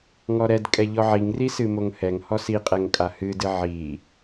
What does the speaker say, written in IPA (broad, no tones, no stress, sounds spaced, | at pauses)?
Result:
ŋ ɔ ɾ ɛ d kʼ ɛ ʎ ɔ ʕ i ŋ r i s ɨ m o ŋ h ɛ ŋ h ɔ s i qʼ ɛ ŋ kʼ a h ɨ d ɨ ʕ i